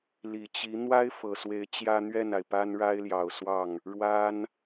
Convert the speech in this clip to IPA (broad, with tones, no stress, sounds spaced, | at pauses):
l i˨˩ t͡ɕ i˧˥ n̪ w a˥ ɪ̯ f ɤ˨˩ s w e˧˥ ɪ̯ t͡ɕ j ä˥ n̪ ɥ ɛ˥˩ n a˩ ɪ̯ p a˥ n ɻ a˥ ɪ̯ l j ɑ˨˩ ʊ̯ s w ɑ˥˩ ŋ | ɻ w a˥ n